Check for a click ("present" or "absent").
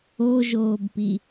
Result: absent